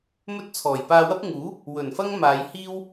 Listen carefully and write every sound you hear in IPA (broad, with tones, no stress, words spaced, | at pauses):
mɵ˥t̚t͡sʰɔː˨˩j paː˧wɐ˥p̚ ŋuː˨˥ | wɵ˨˩nfɐ˥ŋ maː˨˧jhiː˥w